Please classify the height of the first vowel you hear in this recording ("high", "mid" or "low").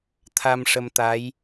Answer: low